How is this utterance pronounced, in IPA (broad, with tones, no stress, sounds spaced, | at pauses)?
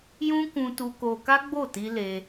j ũ˦ k ũ˦ t u˦ k o˦ k a˦ ɡ͡b o˦˨ t i˧ l e˧